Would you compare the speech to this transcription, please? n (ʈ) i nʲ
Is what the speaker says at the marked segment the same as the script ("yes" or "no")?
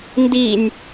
no